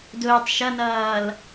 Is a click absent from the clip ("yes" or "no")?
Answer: yes